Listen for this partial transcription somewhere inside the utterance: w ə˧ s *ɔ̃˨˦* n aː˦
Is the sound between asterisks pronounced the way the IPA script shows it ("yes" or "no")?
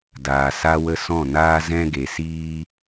no